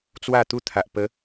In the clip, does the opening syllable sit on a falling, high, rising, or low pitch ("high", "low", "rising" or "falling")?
falling